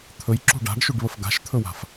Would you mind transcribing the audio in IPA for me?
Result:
t̪ʰ ɵ j ǁ ṳ ɖ a̤ ɖ ʃ u ɖ β ə f ɡ a̤ ʃ t̪ʰ ɵ w a̤ f

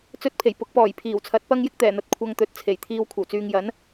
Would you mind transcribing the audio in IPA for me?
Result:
t͡s ɵ˥ t̚ pʰ e˨˩ j p ʊ˨˥ k̚ p ɔː˨˩ j pʰ iː˨˩ w t͡sʰ ɐ˨˥ t̚ p ɐ˥ ŋ j ɪ˥ k̚ t̪ ɛː˨˩ n̪ ɐ˨˥ t̚ kʷʰ ɐ˧ ŋ t̪ ɵ˨˥ t̚ t͡sʰ e˨˩ j t̪ʰ iː˧ w kʷʰ ɐ˨˩ w t͡s yː˨ ŋ j ɐ˨˥ n

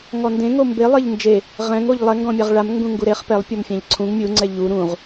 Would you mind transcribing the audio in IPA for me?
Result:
ŋ ɔ n d ẽ ŋ o m b e lˠ e ʎ n d͡ʒ e | ʁ ɛ̃ ŋ o ʎ lˠ ɛ ŋ ɡ ɔ̃ mʲ a ʁ ɭ a m ŋ ɡ ũ ŋ ɡ u ɾ e χ p ɛ lˠ pʲ ɔ m fʲ ã ʎ ǀʰ ũ ŋ mʲ u ŋ͡ǀ ɛ ʎ u ɾ ũ ʁ

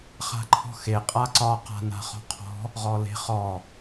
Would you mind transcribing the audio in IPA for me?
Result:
χ a̤ ǃʰ ɔ̤ x e qʼ a ǀ ɒ q a̤ n a̤ χ ɔ̤ qʰ ɔ̤ | ʁ ɔ l e̤ χ ɔ

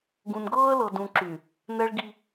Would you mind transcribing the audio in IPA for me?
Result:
ɡ ũ˨ n ɡ ɤː˦ ə̯ l ɤ˨ d ũ˨ ǁ y˨ | n ɛ˦ ɭ ɡ i˦

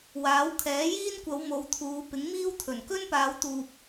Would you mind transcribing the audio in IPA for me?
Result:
w aː˨˥ w kʰ ɛː˨˥ j iː˥ n kʷ ɐ˨˧ w m o˨˧ w t̪ʰ uː˨˧ p ɪ˨˥ ŋ m iː˥ w t̪ʰ ɵ˨˩ n k ɵ˥ n p aː˨˧ w t̪ uː˨ p̚

